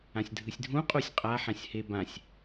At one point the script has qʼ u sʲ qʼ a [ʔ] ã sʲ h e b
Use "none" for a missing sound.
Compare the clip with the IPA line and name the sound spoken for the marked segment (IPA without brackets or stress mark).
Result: ħ